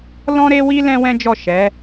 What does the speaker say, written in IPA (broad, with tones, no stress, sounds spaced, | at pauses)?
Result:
l ɔ̃˦ ɾ e˦ w i˦ l ɛ̃˦ w ɛ̃˦ d͡ʒ ɔ˦˨ ʃ ɛ˨˦